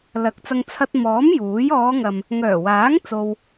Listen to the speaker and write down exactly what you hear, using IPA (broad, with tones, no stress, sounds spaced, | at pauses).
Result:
l ɐ˨˥ k̚ t͡s ɐ˧ ŋ t͡sʰ ɐ˧ t̚ m ɔː˨˥ m j uː˨˥ j ɔː˨˧ ŋ ɐ˨ m | ŋ œː˨˩ w aː˨˥ ŋ t͡s o˥ w